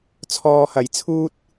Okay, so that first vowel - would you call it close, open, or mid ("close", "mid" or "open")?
mid